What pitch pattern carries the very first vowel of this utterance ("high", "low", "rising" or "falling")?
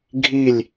falling